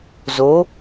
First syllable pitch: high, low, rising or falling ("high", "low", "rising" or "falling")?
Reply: rising